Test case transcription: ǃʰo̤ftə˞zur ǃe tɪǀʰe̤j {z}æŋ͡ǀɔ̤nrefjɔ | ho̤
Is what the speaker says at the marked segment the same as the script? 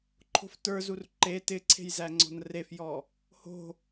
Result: yes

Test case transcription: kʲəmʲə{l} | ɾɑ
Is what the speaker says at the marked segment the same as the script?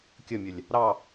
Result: no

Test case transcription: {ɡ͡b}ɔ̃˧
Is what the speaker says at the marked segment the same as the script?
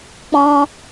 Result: no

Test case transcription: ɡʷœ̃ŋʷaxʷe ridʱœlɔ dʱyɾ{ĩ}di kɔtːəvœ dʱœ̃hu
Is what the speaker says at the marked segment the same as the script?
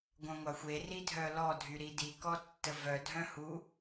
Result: no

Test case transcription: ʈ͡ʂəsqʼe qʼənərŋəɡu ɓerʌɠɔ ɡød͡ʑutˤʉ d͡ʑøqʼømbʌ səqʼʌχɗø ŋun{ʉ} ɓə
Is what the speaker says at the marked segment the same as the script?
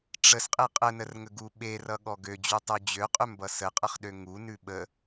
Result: yes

